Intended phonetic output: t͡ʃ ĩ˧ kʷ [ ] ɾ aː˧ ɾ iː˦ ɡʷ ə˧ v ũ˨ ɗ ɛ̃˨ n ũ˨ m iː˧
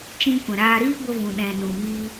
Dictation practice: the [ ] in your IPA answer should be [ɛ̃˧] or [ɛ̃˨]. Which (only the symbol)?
ɛ̃˨